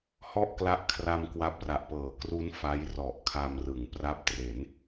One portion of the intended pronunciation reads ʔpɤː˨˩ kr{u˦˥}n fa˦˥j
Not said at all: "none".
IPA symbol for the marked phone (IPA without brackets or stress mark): u˦˥